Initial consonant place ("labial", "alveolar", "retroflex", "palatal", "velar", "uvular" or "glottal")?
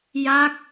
palatal